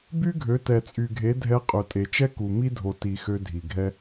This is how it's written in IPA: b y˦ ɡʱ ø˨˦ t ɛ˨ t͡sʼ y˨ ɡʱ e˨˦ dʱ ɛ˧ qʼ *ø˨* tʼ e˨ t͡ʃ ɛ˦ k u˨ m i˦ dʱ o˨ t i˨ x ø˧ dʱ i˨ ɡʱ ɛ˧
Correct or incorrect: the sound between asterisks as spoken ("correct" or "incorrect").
correct